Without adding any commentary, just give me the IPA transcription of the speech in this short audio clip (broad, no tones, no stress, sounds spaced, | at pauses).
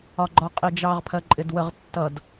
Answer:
ɒ ɡ͡ǃ ɒ qʼ i d͡ʒ ɑ ʁ pʰ ɜ ǃʼ ɪ d w ə ʁ tː ʌ d